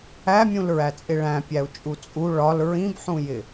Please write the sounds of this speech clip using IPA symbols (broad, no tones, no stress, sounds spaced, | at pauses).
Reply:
æ mʲ ũ l ɹ æ t͡sʼ ɪ ɭ æ̃ pʲ æ u̯ t͡ʃʼ u t͡sʼ u ɭ ɒ l ɹ ĩ b ħ ũ j ɪ